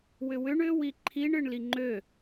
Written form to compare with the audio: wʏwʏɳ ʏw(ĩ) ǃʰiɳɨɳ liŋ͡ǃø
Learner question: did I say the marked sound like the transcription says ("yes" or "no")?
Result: no